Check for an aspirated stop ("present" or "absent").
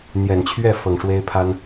present